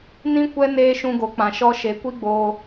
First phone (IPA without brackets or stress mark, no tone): n